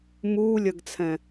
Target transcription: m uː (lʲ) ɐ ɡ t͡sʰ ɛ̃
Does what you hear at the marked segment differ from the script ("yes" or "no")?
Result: no